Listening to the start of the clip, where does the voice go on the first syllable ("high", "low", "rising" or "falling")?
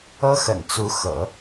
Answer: high